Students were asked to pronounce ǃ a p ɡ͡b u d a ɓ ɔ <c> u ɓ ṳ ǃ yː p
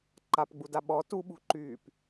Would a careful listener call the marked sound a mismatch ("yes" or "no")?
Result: yes